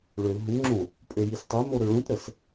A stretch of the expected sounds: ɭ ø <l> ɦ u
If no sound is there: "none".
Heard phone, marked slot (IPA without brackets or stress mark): l